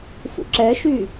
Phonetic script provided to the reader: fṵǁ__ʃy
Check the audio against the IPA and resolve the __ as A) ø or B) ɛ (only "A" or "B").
B